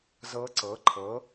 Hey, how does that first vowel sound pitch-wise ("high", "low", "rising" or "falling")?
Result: rising